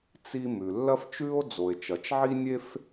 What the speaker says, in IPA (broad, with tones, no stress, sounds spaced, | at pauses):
t͡s i˥ m ʉ˩ lː ɐ˥ f t͡ʃ ʉ˥ o̯ d͡z o˩ e̯ t͡ʃ ɐ˩ t͡ʃ ʕ i˥ nʲ e˥ f